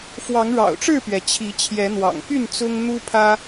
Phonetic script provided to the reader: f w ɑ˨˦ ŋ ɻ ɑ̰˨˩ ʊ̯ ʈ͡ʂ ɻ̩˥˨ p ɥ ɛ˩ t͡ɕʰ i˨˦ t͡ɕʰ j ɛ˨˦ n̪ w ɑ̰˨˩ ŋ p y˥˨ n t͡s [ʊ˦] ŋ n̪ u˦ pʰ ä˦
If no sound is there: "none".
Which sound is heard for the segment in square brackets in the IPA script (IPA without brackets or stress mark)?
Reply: ʊ˦